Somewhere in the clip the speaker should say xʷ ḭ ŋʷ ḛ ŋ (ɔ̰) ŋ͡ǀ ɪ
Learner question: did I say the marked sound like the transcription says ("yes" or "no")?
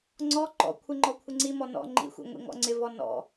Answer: yes